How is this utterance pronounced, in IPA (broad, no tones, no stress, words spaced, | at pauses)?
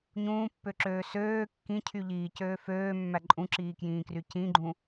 ɲũːpːøǁøː søː kːĩ cʰyʎiːcøː føːmːæ ǃʼũǁiːkjĩːkry cĩɡ͡ǃũ